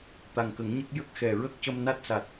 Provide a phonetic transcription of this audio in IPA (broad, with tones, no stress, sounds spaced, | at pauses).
t̪ a˨˩ ŋ k ə˨˩˦ ŋ ɲ ə˦˥ k̚ j ə˦˥ k̚ x ɛ˨˩ ɹ ə˦˥ k̚ c ə˧ m n a˦˥ t̚ s a˨˩ t̚